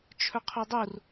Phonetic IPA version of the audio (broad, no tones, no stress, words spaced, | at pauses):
t͡ʃʰɵqʰodˤur